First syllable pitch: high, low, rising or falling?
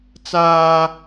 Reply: high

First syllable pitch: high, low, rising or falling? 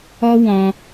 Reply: high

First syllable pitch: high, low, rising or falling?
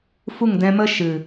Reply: falling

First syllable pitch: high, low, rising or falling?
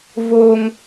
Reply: low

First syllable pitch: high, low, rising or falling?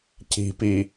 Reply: low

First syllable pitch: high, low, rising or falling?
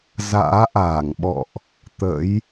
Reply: rising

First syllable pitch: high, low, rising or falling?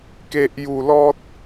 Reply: low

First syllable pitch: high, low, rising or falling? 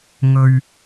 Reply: low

